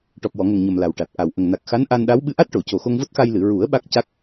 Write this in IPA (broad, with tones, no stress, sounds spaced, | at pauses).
ʈ ɔ˨˩ p̚ w ɔ˨˩˨ ŋ ə˨˩ ŋ ɲ ə˨˩ m l a˨˩ w ʈ a˨˩ t̚ ʔ a˨˩ w ʔ ə˨˩ ŋ n a˨˩ k̚ x a˧˥ n ʔ a˧ n ɗ a˧˥ w ɓ ɨ˧˥ ʔ a˦˥ t̚ ʈ o˨˩˨ c o˨˩ x o˧ ŋ v o˦˥ t̚ x a˧ j l ɨ˨˩˨ ɹ u˨˩˦ ə̯ ɓ a˦˥ k̚ c a˦˥ k̚